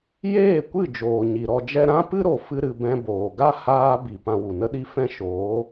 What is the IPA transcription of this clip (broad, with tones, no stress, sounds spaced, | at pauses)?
j eː˦˨ kʷ ɨ˦˨ d͡ʒ oː˨ ɲ i˨ ɾ ɔ˧ d͡ʒ ɛ˦ ɾ ã˦ p ɨ˦ ɾ o˨ f ɨ˧ ɾ ɨ˨ b ɛ̃˧ b oː˨ ɡ a˦ h aː˦ b i˨ p ã˧ w u˨ n ə˦ ɗ i˦ f ɛ̃˦ ʃ oː˨˦